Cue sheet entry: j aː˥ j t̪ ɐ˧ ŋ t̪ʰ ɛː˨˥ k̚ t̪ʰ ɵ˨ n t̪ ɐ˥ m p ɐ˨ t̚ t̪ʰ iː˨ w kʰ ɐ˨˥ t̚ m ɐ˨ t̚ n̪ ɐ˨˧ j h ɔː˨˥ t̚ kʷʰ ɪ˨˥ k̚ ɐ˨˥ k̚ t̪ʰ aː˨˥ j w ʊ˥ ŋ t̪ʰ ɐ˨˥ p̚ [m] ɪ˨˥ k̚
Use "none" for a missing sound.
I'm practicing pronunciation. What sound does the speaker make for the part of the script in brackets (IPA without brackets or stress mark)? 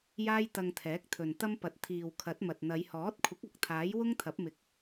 m